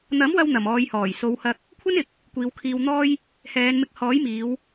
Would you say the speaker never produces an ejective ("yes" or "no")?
yes